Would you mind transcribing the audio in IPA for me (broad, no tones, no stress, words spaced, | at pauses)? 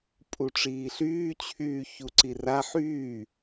pʼuʈ͡ʂiːɬyːt͡ɕʰyː çuǀira ħyː